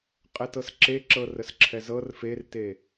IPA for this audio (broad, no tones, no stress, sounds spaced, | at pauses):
qʼ ɛ t ɤ s ǁ e ǁ ɤ r ə s ǁʰ ɛ z ɤ r f e r t e